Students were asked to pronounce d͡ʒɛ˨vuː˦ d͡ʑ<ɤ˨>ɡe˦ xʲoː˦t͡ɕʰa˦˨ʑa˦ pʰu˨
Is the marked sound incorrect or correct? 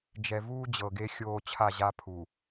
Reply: correct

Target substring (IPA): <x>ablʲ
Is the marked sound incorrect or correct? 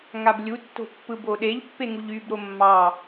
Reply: incorrect: ŋ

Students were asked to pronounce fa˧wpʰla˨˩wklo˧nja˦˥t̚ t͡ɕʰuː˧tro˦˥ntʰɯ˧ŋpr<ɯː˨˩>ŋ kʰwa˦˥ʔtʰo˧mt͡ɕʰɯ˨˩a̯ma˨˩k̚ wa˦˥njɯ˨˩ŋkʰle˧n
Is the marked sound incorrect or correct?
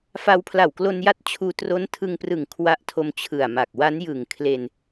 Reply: incorrect: ɯ˨˩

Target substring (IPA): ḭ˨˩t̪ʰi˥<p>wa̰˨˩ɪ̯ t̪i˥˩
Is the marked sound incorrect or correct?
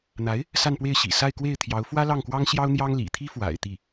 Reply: incorrect: f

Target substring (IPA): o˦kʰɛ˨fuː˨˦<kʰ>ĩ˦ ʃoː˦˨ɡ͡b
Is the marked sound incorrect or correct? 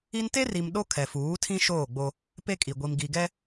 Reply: incorrect: tʰ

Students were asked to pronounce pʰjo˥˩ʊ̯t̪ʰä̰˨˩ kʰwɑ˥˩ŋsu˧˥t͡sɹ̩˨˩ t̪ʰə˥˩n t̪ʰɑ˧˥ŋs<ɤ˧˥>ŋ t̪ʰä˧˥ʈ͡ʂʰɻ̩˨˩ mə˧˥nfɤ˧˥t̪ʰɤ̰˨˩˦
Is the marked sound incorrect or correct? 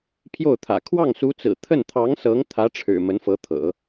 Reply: correct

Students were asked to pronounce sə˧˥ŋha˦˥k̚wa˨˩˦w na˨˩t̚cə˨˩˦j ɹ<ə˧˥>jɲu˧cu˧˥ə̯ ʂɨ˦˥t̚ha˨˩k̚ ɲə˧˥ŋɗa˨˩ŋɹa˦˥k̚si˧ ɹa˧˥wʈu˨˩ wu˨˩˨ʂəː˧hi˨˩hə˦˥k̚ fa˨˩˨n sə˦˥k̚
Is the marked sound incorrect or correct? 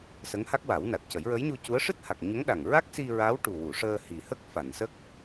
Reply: correct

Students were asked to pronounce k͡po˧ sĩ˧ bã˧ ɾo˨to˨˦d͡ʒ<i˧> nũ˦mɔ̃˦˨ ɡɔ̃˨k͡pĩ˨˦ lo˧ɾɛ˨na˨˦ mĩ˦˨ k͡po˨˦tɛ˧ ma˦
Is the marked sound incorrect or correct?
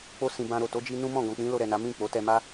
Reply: correct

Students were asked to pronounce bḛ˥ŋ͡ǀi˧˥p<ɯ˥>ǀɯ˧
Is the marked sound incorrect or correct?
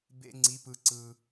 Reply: incorrect: ɯ˧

